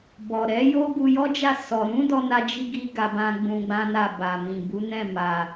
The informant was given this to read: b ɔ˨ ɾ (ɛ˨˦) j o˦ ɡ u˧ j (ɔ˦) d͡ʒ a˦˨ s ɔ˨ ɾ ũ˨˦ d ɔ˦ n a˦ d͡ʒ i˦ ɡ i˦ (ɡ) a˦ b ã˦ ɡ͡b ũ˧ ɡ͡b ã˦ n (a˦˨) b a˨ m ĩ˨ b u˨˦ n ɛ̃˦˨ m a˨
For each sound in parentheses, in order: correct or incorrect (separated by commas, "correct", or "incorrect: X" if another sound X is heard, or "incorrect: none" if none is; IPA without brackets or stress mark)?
correct, correct, correct, correct